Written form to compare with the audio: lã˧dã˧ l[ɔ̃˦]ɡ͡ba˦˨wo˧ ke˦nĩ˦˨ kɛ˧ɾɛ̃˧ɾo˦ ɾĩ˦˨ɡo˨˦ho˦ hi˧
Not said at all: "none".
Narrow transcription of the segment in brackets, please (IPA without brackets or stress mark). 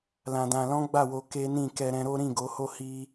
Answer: ɔ̃˦